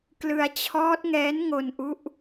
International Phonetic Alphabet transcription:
k l ɯ˧ a̯ t͡ɕʰ ɔː˦˥ t̚ ŋ ɛː˦˥ n ŋ o˧ n ʔ u˦˥ ʔ

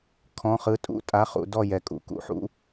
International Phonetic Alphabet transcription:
kʰ ɔ̃˧˥˧ χ ɯ˧˥˧ tʼ ṵ˥˨ tʼ a˧˥˧ χ ṵ˨˩˦ d ɔ˥˨ j ɛ˨˦ kʼ ṵ˨˩˦ k ṵ˨˩˦ ħ ṵ˨˦

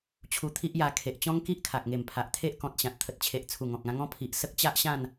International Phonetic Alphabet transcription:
t͡ɕʰ u˧ t̪ʰ i˦ ʔ j a˧ kʰ e˨ ʔ t͡ɕ ɔ̃˦ ŋ k i˦ ʔ kʰ a˨ k̚ ŋ e˨˩ m pʰ a˨ ʔ t̪ʰ e˦ ʔ k ɔ̃˨ t̚ ɕ ã˨ t̚ t̪ʰ ə˨ t̚ t͡ɕʰ e˨ ʔ t͡sʰ u˨˩ ŋ ɔ̃˨ k̚ ã˧ ŋ ɔ̃˦ pʰ i˨ ʔ s ə˦ k̚ t͡ɕ a˦ ʔ ɕ ã˥˧ n

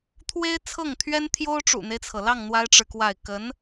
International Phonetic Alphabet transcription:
t̪ʰ w e˥ ɪ̯ t͡sʰ ɤ˥˩ ŋ t̪ʰ ɥ ɛ˥ n t̪ʰ j o˥ ʊ̯ ʈ͡ʂ ṵ˨˩ n̪ e˦ ɪ̯ t͡sʰ ɤ˩ l ɑ˥˩ ŋ n̪ w a˥ ɪ̯ ʈ͡ʂ ɻ̩˨ k w a˥˩ ɪ̯ k ə˧˥ n

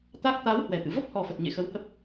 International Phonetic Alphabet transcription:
t̪ a˦˥ k̚ t̪ a˨˦ w h w ɛ˨˩ t̪ ɨ̰˧˨ v ə˦˥ p̚ h ɔ˨˩ f ə˨˩ t̚ ɲ ḛ˧˨ x ə˨˦ w h ə˦˥ p̚

